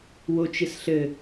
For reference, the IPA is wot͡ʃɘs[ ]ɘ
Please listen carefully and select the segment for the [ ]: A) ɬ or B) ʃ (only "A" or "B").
A